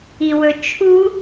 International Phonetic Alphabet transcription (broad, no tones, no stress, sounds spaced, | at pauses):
i w ɵ t͡ʃʰ u